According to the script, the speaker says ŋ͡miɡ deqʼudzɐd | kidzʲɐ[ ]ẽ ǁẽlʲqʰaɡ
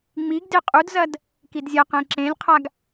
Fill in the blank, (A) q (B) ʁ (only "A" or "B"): A